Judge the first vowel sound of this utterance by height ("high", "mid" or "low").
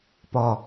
low